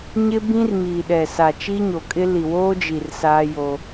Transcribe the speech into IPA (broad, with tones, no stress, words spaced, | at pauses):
ɲɪ˦bĩ˦r miː˨ɗɛ˨sa˨ t͡ʃi˦ɲo˨kʼɪ˦ li˨woː˦d͡ʒi˨r saː˦jo˦